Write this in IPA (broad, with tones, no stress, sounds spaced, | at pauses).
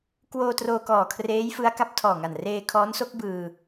k w oː˧ t r oː˧ k ɔː˨˩ kʰ r eː˦˥ j f ɯ˦˥ a̯ k a˦˥ p̚ tʰ ɔː˨˩ ŋ a˨˩ n r eː˧ kʰ ɔː˦˥ n s o˦˥ k̚ b ɯː˧